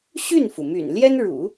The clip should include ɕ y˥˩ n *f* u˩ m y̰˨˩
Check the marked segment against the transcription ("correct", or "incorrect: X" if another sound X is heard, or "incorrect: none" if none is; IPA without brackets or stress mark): correct